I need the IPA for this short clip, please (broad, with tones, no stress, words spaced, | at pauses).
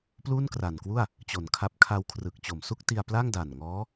pluː˥˩nkra˨˩nkwu˥˩a̯ | t͡ɕo˨˩nkʰa˦˥p̚ kʰa˧wkʰrɯ˨˩k̚t͡ɕo˨˩m su˥˩k̚ti˧a̯ pla˥˩ŋda˨˩nŋɔː˦˥